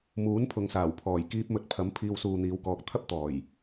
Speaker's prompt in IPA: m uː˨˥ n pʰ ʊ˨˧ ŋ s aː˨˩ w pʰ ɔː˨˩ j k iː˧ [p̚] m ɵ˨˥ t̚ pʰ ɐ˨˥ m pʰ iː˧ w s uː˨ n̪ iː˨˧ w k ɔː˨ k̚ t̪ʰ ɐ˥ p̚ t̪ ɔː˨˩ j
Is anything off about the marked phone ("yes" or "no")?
no